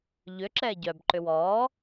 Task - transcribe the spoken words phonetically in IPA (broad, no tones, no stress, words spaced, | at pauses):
ʎʏ ǁɛːɟœb ǃʏwɔː